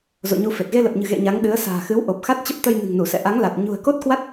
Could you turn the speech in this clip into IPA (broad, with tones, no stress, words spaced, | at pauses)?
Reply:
zo̰˧˨ ɲu˧fe˨˩t̚ ɣe˧lə˨˩p̚ɲɨ̤˨˩ ɣḛ˧˨ ɲa˨˦ŋ ɗɨ˨˦ə̯sa̤ː˨˩ xɨ˨˦w ʔo˨˩p̚xa˦˥t̚t͡ɕə˦˥p̚t̪ə˧j nɨ̤˨˩ŋnu˧˩sɛ̰˧˨ ʔa˨˦ŋla˨˩t̚ ɲṳ˨˩ə̯ko˦˥t̚kwa˦˥t̚